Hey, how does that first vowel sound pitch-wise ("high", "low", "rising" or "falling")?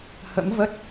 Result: rising